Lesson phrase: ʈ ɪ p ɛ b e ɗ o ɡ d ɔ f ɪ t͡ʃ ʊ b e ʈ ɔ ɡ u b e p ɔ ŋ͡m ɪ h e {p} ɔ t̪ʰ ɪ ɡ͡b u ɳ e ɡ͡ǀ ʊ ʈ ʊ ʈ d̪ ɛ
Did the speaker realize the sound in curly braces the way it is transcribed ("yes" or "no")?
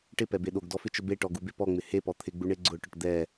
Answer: yes